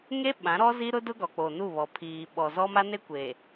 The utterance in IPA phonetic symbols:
ŋ e˦ ɓ ã˨˦ ɾ ɔ˦ z i˦ ɾ ʊ˦ d ʊ˦ ɡ ɔ˨ k͡p o˨ n u˦˨ β ɔ˨ pʰ iː˨ ɓ ɔ˨ z ɔ˦ m a˦ n e˦ kʷ e˨

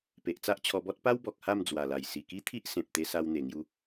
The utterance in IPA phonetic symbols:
p e˨ ʔ t͡s a˦ ʔ t͡ɕʰ ɔ˧ b ɔ˦ t̚ p a˦ w b ɔ˨ k̚ h a˥˧ m d͡z w a˨˩ l a˨˩ j s i˨˩ k i˦ t̪ʰ i˦ ʔ s ẽ˨ p̚ t̪ e˧ s a˧ w n̪ e˨˩ ŋ j u˧

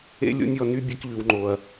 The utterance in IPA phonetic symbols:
ḛ˦ lʲ o̰˦ nʲ ɔ˧ n y˦ bʲ ɛ˧ k ʎ ʉ˨ w ŋ͡ǃ o˨ ɐ̯

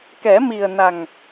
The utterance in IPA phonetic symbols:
k ɛ˨˩˦ m i˨˩ ə̯ n a˨˩ ŋ

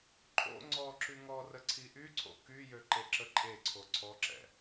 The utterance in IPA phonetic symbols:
ǃʼ o̰ ŋ͡ǀ ɔ ǁ y ŋ ɔ r ə ǀʰ i ʔ y ǀʰ o̰ k y j ø ǃ e ǁ ə ǃʼ e ǀʰ o ǀʰ ɔ ǁ ɛ̰

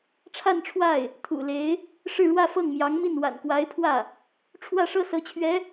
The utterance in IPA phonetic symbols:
ʈ͡ʂʰ a˥˧ n ʈ͡ʂʰ w a˥˩ ɪ̯ | t̪ʰ ṵ˨˩ l e˧˥ ɪ̯ | ʂ ɻ̩˥˧ ɻ w ä˥˧ f ɤ˥˩ ŋ m j ɑ˧˥ ŋ m i˥˩ n w a̰˨˩ n k w a˧˥ ɪ̯ pʰ w ä˥˩ | ʈ͡ʂʰ w ä˥˩ ʂ ɤ˥ s ɤ˧˥ t͡ɕʰ ɥ ɛ˧˥

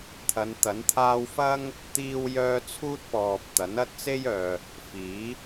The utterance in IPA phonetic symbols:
t̪ʰ ɐ˨˧ n t̪ ɐ˨˥ n t̪ʰ aː˥ w f ɐ˥ ŋ | t̪ iː˥ w j œː˥ t͡sʰ uː˥ t̚ p ɔː˨ p̚ t̪ ɐ˨˥ n ɐ˥ t̚ t͡s e˥ j œː˨ | f iː˨˥

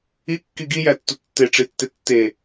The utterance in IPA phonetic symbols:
i kː i ɡ i j æ tː u tː e ʈ͡ʂ i tː e tː e

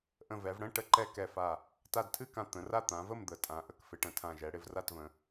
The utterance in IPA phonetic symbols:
ʔ ə̃˧˩ v ɛ˩˧ v ɽ ə̃˥˨ ʈ ə˥˨ ǃ ɛ˥˨ k ɛ˧˩ f a˧˩ | t a˧˩ d tʰ ɨ˥˨ k ã˧˩ t̪ ə̃˩˧ r a˥˨ t̪ ã˩˧ v ə˥˨ m d̪ ə˩˧ tʼ ã˩˧ ʔ ə˧˩ k f ɪ˩˧ ʈ ə̃˩˧ tʰ ã˧˩ ʒ ɛ˩˧ ɽ ɪ˥˨ v r a˥˨ t v ə̃˩˧

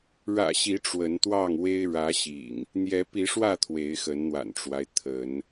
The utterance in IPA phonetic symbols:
ɻ ä̰˨˩ ɕ i˨˦ ʈ͡ʂ w ə˨˦ n t̪ w ɑ˥˨ ŋ w e˦ ɪ̯ ɻ ä˨˦ ɕ ḭ˨˩ ŋ | n̪ j ɛ˨˦ p i˨˦ ʂ w ä˥˨ t̪ʰ w e˨˦ ɪ̯ x ə˨˦ n n̪ w a̰˨˩ n ʈ͡ʂ w a˦ ɪ̯ t̪ʰ ə˨˦ n

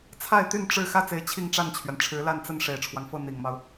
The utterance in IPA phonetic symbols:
t͡sʰ a˥˧ ɪ̯ t̪ y˥˧ n ʈ͡ʂ ɻ̩˥˧ x ä˥˩ t͡s e˧˥ ɪ̯ t͡ɕʰ i˥˧ ŋ ʈ͡ʂ a˥˩ n t͡ɕʰ ɥ ɛ˩ n ʈ͡ʂʰ ɻ̩˧˥ l a˥˧ n t͡s ə˥˩ n ʂ e˨˩ ɪ̯ ʈ͡ʂʰ w ɑ˦ ŋ f ɤ˥˩ n̪ i˨˩ ŋ m ɑ˦ ʊ̯

